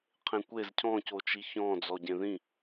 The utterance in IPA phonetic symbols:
qʰ ẽ kʷ e z cʰ ɔ̃ c o t͡ʃ i ç ɔ̃ d͡z ɔ ɟ ẽ ð ĩ

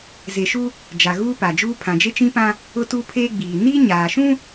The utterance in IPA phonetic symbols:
z e˨ ʃ u˦ | d͡ʒ a˨ ɣ uː˦ p a˨ d͡ʒ uː˦ pʰ ã˨ d͡ʒ e˦ t͡ʃ ĩ˦ p ã˦ | ʊ˦ t u˦ pʰ eː˦ ɡ͡b iː˨ n iː˦ ɲ aː˨ ʃ ũ˦

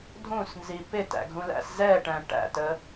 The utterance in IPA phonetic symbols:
dʱ ũ s n z i p ɪ t æ̰ ɡʱ ũ l æ̰ s z ɛ ʈ æ̃ ʈ æ̰ t ə

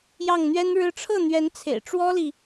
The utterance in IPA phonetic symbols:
j ɑ˥˩ ŋ n̪ ɥ ɛ˥ n ɻ ɻ̩˥ ʈ͡ʂʰ ɤ˥˩ n̪ ɥ ɛ˧˥ n t͡sʰ ḛ˨˩ ɪ̯ ʈ͡ʂ w ɔ˥ l i˨

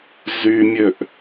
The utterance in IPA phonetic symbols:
z y mʲ ø ʔ

